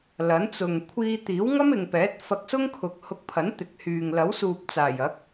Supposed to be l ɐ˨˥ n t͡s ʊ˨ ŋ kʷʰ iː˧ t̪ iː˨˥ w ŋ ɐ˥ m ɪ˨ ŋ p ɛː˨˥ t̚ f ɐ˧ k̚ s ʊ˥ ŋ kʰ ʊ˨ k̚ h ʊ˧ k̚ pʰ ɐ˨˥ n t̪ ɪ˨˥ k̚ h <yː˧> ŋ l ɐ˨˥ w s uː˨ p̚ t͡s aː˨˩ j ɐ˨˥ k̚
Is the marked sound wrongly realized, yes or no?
yes